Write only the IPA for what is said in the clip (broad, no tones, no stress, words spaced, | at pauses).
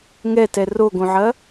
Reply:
ŋɛtɛ roɡõʕɐ